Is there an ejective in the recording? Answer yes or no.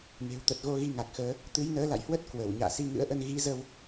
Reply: no